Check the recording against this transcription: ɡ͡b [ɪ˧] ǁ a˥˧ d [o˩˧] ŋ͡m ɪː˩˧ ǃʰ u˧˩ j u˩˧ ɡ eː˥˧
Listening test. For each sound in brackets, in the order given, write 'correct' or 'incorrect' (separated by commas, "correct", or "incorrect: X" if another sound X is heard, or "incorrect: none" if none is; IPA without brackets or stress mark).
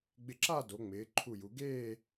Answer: correct, correct